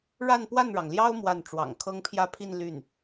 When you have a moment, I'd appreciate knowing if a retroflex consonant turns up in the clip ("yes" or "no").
yes